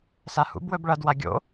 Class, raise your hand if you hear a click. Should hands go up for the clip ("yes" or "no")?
no